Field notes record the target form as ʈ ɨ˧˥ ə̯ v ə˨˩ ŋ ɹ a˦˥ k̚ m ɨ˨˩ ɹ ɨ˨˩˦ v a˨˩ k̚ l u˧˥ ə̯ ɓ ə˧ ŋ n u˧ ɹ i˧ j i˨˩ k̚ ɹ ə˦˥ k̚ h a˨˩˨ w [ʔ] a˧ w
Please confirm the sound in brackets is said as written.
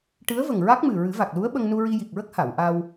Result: yes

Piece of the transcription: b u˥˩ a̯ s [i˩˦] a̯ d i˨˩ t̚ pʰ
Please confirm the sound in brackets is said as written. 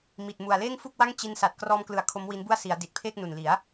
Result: yes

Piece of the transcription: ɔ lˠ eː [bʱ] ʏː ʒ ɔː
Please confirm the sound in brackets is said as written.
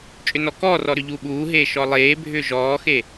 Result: yes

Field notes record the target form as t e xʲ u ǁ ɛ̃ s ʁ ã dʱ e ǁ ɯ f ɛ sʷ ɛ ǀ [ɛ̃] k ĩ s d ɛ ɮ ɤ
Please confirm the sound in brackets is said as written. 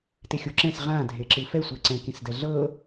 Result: yes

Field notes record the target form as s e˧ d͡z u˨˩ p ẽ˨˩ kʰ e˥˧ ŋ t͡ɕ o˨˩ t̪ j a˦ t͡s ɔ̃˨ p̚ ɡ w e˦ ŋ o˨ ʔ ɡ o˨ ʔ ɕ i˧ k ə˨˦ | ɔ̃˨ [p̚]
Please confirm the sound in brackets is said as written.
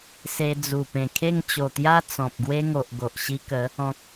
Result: no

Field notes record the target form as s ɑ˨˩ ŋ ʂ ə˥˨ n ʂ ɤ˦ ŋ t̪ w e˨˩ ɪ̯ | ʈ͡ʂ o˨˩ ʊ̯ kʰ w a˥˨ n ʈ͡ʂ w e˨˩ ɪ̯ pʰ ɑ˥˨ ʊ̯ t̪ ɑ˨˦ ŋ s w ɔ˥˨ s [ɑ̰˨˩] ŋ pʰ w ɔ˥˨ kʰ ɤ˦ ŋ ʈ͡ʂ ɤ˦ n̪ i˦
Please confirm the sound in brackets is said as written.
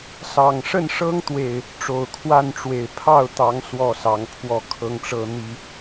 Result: no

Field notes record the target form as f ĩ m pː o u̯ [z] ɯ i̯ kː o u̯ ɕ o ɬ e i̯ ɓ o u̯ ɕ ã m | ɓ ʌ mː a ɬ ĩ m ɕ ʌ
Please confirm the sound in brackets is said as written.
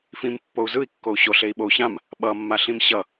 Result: yes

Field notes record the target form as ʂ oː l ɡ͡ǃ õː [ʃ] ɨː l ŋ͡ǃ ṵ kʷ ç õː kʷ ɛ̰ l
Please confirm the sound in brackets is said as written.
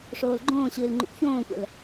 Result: no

